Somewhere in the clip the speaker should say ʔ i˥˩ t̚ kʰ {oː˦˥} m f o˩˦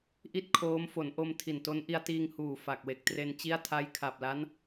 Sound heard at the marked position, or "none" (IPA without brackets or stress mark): oː˦˥